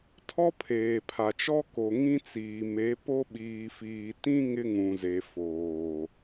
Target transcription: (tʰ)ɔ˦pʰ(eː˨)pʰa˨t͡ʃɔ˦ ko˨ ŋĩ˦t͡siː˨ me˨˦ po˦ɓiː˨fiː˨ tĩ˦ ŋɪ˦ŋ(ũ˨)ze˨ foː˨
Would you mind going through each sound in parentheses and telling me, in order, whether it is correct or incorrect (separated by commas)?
correct, correct, correct